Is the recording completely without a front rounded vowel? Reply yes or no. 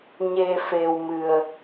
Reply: yes